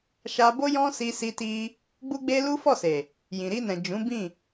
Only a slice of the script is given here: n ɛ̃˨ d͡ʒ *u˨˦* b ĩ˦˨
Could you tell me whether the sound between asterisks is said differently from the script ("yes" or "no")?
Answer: yes